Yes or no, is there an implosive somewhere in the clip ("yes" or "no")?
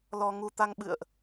yes